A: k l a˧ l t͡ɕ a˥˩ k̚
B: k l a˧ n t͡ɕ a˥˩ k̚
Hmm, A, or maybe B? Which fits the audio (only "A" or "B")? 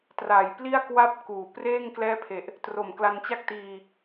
B